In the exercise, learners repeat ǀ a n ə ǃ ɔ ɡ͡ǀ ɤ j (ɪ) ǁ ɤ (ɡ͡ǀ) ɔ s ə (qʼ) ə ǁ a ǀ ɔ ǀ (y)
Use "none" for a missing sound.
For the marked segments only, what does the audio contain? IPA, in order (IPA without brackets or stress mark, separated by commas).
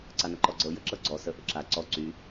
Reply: ə, ɡ͡ǀ, ʔ, y